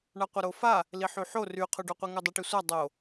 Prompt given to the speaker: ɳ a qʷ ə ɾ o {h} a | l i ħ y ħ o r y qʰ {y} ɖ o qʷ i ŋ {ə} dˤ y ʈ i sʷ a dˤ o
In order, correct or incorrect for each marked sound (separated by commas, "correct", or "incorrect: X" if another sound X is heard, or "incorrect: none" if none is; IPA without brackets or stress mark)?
incorrect: f, correct, correct